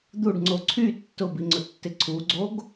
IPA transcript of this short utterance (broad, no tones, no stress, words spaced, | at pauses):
d̪uɖŋ͡ǀo ǀʰy tːʊbiŋ͡ǀʊtːɪ ǀʰuɡ͡ǀoɡ